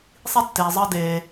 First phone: sˤ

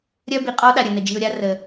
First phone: ɾʲ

